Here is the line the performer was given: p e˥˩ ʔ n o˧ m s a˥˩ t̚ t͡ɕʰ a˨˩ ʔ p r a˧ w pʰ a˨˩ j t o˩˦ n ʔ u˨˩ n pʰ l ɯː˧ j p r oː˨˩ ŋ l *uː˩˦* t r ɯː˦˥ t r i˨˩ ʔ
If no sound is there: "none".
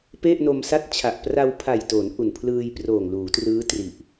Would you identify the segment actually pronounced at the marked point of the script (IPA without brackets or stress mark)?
uː˩˦